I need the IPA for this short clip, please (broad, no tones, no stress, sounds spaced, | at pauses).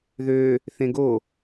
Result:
ð ø | θ ẽ ɡ o